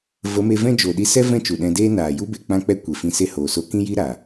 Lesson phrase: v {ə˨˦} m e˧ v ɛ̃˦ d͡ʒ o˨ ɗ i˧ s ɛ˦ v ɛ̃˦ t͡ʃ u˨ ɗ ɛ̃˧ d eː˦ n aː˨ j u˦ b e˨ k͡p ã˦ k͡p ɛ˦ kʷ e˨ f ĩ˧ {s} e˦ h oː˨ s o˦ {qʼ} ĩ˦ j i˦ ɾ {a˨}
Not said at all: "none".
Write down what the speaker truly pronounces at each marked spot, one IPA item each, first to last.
ə˨˦, s, k, a˨

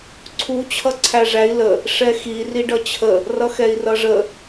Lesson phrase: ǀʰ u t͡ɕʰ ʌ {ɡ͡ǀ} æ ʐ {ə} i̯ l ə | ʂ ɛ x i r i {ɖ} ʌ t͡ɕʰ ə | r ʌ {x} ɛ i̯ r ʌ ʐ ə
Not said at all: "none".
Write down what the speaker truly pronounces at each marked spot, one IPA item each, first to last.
ǀʰ, æ, ɖ, x

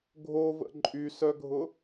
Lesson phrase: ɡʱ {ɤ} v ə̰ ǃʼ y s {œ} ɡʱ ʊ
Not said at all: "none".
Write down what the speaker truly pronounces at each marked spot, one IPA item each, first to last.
o, œ

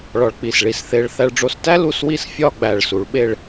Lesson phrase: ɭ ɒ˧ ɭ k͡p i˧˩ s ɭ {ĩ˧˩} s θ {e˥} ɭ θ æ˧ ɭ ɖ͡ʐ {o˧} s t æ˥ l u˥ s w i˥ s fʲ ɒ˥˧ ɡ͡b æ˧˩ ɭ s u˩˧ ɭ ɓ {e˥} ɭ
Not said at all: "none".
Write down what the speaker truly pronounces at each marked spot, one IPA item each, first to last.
i˧˩, e˧, o˧, e˥˧

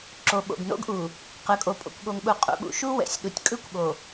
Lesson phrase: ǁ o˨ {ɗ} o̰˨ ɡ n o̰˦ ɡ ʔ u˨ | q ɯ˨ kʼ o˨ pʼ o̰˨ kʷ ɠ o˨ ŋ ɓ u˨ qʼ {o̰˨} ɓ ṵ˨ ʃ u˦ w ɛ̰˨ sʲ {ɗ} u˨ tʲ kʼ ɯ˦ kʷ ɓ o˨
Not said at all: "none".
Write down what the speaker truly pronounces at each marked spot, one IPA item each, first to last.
ɓ, ṵ˨, ɗ

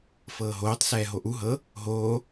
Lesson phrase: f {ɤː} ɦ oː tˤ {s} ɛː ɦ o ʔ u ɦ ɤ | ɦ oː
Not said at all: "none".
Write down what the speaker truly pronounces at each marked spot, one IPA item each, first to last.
ɤː, s

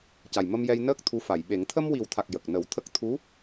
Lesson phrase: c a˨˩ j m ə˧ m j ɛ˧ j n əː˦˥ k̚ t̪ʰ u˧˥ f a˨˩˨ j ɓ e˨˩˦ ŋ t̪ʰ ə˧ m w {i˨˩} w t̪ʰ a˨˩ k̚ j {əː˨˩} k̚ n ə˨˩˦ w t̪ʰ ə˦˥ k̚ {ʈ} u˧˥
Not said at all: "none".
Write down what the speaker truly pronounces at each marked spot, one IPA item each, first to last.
i˨˩, ə˨˩, t̪ʰ

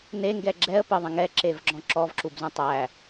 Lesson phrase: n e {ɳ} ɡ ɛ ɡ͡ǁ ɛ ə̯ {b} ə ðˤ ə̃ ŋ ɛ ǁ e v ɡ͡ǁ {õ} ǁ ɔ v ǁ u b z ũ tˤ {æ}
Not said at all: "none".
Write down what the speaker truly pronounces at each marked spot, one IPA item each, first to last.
ŋ, p, ɔ̃, æ

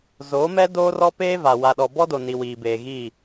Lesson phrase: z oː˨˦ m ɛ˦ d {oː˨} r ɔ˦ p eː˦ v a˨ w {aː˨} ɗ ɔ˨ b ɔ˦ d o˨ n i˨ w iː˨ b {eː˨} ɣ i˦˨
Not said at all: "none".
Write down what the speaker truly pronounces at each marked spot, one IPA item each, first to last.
oː˦, a˨, eː˨

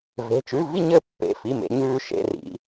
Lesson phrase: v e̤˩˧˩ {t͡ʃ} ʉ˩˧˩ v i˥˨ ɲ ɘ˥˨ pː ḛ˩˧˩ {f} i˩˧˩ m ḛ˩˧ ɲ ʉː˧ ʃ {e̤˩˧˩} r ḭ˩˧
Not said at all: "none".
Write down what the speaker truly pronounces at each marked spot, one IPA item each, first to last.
t͡ʃ, f, ḛ˩˧˩

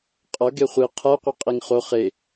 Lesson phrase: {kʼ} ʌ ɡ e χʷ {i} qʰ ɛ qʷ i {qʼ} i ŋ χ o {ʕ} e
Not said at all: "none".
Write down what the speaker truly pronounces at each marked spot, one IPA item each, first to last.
qʼ, i, qʼ, χ

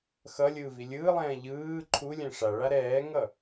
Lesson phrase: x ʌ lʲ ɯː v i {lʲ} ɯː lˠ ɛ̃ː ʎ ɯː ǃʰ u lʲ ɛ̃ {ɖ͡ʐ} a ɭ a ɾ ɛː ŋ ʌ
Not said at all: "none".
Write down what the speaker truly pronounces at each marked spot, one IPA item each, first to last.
lʲ, ʂ

